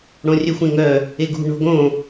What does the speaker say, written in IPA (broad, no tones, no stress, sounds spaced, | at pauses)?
ɽ õ rʲ œ xʷ ẽ ŋ œ | e ɡ ṳ ɳ o̤ ɡ õ